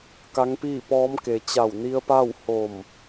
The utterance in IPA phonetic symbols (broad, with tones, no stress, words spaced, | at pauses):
ka˧˥ŋpiː˥˨pɔː˧˥mke˩ t͡ɕa˧˩wni˧ə̯pa˥˨w ho˧˩m